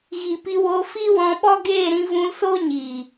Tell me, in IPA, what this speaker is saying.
ɣ iː˨ p i˧ w oː˧ f iː˦ w ɔ̃˧ ɓ ɔ˦ ɡ eː˦˨ ɾ ĩ˧ v ũ˧ l s o˦ ɲ iː˨

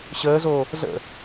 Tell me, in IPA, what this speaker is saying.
ɕ əː z oː | z ə̰

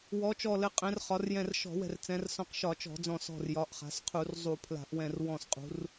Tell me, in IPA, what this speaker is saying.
w ɔ˩˧ t͡ʃ ɔ˧˩ l ɘ˩˧ qʼ ɛ̃˩˧ r χ ɒ˩˧ r j ɛ̃˧˩ r ʃ ɔ̤˧˩˧ w ɛ̤˧˩ r t͡s ɛ̃˩˧ r s ɔ̃˧˩ q ʃ ɒ˧˩˧ t͡ʃ ɔ̤˧˩˧ d͡z ɔ̃˧˩ s ɔ̤˧˩ r j ɒ˩˧ ʔ χ a̤˩˧ s qʰ u˧˩˧ r zˤ u˧˩˧ pʰ l a̤˧˩˧ ʔ w ɛ̃˧˩ r w ɔ̃˧˩ s qʼ ṳ˩˧ r

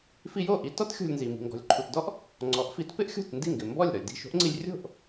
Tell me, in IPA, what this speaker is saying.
f i˧ j o˥˩ ʔ i˧ t ɔ˥ t xʲ o̤˧ lʲ n z i˩ m i̤˩ ŋ ɡ ɔ̤˩ lʲ ǃʰ u˩ t d ɔ˥ ʔ | ŋ͡ǀ ɔ˩˥ ʔ f i˩˥ t p ɪ˥ ʔ xʲ o̤˥˩ t n d i˥˩ ŋ ɡ ɪ˩ m b ɔ˥˩ lʲ ɾ ɔ˩ lʲ d i̤˥˩ ʃ o̤˥ ʔ ŋ͡ǀ i˧ lʲ rʲ o̤˥˩ ʔ

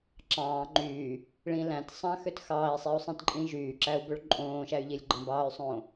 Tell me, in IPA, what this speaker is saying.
ǁ ɑ̃ː ŋ͡ǃ yː | ɭ ĩ l æ̃ t sˤ ɑ̃ x ø t x ɑː i̯ sˤ i u̯ sˤ ĩ t ǃʼ ĩ ʒ yː ǁ æ u̯ b ø ɭ ǃʼ õː ʃ æ y̯ ʎ i lʲ ɡ͡ǃ ɑ̃ b ɑː y̯ sˤ õː

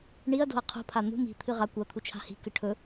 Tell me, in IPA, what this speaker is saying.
ɳ i ɐ̯ d o̤ ɐ̯ qʰ ṳ pʰ a n̪ ṳ m i̤ t̪ʰ ɨ ʁ a kʷ ɐ t̪ʰ u t͡ʃʰ a̤ h i̤ k ɨ ʈʰ ɵ

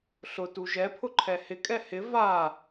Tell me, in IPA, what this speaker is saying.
ɬ ʊ t u ʒ ɛ pʰ ʊ ǃʰ ɛ h ɪ kʼ ɛ h ɪ v a

